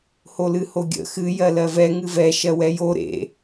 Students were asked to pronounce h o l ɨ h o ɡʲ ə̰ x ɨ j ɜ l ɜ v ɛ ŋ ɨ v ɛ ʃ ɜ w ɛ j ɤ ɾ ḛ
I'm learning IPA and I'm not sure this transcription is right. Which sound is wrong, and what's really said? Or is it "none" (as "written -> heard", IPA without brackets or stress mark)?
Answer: ɤ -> o